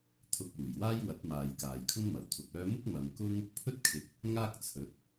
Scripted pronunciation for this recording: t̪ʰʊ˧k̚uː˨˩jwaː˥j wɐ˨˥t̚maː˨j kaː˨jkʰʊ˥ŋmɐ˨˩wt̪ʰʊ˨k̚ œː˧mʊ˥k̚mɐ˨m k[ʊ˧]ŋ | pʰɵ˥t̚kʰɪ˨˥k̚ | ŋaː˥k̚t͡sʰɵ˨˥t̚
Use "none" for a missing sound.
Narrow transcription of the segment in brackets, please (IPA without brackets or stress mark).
ʊ˥